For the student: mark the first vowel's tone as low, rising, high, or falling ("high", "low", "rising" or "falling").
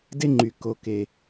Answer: high